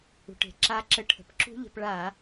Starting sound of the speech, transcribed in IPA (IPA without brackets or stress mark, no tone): ṳ